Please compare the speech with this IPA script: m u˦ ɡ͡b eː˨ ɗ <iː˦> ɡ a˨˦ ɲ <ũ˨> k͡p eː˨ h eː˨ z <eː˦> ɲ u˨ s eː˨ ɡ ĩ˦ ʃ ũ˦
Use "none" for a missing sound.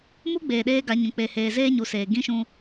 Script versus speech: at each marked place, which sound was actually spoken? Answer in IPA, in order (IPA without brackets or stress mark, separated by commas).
eː˦, ũ˨, eː˦